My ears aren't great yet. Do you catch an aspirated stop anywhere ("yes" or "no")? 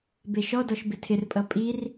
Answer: yes